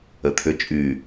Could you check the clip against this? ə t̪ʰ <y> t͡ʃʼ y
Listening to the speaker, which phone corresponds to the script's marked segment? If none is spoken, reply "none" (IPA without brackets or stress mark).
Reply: ʏ